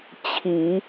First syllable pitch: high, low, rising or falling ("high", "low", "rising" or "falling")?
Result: rising